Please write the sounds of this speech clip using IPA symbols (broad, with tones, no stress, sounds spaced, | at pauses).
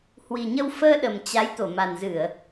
h w i˨˩ ɲ ə˧ w f əː˧ ɗ ə˨˩ m t͡ɕ a˨˦ j t̪ o˧˩ m a˨˩ n z ɨ˧˩˨ ə̯